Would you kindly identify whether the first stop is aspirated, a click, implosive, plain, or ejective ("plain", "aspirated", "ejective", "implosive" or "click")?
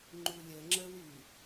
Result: click